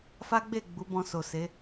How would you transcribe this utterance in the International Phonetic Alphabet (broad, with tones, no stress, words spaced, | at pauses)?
fa˦ɡ͡be˦˨ ɡ͡bu˨˦bɔ̃˧so˨se˨˦